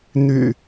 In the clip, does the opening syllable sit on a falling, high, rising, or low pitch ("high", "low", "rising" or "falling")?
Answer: low